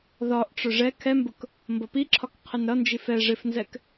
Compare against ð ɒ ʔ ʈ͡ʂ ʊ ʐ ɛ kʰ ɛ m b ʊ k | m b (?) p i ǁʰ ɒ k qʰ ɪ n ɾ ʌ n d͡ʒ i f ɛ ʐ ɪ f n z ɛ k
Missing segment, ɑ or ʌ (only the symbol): ʌ